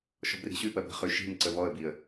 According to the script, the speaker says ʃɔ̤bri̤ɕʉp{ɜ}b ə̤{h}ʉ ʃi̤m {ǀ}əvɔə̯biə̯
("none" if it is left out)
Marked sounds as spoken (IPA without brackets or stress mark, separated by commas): ɜ, χ, ǀ